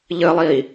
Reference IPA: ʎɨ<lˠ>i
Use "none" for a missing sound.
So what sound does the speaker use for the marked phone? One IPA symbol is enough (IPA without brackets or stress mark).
lˠ